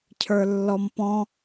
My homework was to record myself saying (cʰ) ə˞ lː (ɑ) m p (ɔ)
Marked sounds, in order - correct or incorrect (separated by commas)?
correct, incorrect, incorrect